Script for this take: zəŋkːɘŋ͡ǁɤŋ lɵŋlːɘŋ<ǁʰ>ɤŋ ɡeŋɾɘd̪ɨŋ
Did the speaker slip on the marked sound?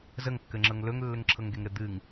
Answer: no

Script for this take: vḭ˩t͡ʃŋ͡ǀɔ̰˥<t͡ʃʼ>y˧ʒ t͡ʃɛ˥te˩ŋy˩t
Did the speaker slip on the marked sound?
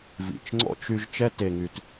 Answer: yes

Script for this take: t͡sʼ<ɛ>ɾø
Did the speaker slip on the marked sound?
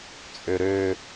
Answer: yes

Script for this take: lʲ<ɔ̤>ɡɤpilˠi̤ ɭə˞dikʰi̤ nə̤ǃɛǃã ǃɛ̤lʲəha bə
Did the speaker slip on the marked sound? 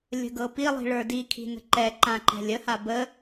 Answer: yes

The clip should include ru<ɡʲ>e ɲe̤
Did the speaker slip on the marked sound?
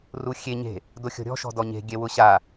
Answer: yes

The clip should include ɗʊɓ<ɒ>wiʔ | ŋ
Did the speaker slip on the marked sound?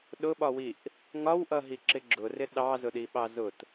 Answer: no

